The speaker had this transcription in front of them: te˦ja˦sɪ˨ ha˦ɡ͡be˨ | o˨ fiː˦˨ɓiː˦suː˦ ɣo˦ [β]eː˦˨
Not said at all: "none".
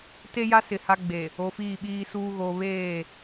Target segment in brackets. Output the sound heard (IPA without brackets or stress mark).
β